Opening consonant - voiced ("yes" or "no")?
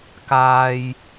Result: no